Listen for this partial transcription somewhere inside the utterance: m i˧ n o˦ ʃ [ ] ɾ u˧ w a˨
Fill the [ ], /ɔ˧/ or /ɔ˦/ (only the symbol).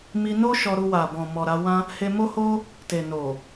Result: ɔ˧